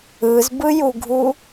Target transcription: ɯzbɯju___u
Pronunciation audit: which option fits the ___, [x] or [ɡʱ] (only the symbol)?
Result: ɡʱ